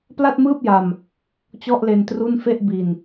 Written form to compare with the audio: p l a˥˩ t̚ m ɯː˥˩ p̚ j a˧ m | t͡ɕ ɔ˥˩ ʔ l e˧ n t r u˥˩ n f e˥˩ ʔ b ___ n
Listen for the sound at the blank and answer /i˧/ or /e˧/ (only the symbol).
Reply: i˧